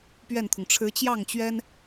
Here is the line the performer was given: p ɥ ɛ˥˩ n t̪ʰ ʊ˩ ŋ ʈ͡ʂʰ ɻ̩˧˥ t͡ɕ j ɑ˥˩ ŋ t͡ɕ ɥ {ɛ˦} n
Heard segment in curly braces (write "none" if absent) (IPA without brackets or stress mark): ɛ˥